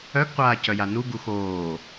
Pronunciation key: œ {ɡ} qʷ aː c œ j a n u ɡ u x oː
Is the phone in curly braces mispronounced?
no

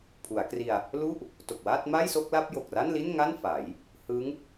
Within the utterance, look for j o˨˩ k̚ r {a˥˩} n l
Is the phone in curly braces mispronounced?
no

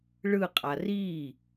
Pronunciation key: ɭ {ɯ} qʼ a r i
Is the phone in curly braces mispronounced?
no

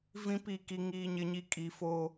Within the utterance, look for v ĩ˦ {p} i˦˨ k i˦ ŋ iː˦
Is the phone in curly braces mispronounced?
no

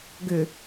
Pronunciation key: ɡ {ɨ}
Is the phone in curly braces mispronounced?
yes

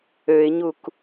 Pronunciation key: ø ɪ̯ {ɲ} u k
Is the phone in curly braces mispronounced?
no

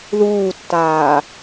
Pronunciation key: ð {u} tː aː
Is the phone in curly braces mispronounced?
yes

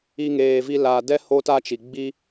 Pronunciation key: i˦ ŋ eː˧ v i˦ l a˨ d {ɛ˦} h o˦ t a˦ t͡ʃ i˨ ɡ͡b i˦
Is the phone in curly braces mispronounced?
no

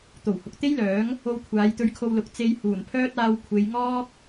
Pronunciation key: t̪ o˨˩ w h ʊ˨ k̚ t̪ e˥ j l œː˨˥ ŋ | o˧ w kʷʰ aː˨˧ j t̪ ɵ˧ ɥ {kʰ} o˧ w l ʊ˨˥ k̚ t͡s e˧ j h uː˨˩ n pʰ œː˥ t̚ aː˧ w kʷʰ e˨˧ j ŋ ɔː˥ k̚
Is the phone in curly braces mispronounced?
no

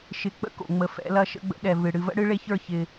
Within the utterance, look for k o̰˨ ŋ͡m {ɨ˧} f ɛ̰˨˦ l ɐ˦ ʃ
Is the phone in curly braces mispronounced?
yes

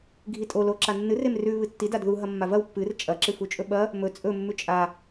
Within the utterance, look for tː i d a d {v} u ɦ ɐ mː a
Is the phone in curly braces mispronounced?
yes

